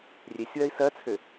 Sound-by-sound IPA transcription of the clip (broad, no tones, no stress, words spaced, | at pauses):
rʲesʲwɜi̯ sɜt͡sʰø